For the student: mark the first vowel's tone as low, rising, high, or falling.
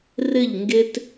falling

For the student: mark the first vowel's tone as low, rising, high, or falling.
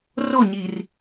falling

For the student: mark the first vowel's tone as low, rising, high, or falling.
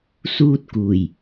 high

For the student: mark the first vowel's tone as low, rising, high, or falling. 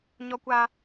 high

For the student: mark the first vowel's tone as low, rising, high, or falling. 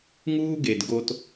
high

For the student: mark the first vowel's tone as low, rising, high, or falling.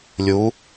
rising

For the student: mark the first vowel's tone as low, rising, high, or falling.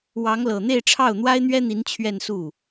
rising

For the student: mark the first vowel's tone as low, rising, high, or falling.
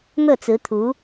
falling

